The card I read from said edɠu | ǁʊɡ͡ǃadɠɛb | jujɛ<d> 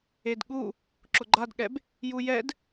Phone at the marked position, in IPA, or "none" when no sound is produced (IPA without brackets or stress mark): d